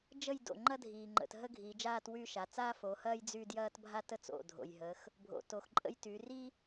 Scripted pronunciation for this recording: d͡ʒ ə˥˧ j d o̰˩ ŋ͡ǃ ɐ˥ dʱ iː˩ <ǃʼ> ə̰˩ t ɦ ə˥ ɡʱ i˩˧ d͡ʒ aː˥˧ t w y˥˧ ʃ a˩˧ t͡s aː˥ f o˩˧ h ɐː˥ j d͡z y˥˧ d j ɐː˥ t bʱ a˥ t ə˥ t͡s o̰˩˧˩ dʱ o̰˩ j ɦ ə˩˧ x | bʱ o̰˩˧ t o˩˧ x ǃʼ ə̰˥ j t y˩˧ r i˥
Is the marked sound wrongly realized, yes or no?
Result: yes